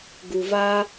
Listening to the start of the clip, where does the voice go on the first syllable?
low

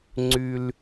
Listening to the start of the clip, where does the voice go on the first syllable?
high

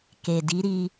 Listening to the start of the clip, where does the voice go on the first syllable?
low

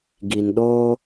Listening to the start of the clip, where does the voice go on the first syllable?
low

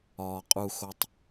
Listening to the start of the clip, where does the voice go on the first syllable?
low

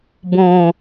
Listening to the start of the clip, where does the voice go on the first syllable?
low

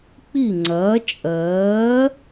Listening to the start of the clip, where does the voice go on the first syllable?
falling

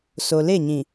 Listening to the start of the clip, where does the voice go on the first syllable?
low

